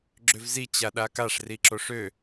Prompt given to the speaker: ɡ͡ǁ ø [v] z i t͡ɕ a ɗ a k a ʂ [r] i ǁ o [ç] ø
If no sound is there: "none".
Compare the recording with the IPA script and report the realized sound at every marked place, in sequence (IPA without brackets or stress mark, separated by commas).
v, r, ʂ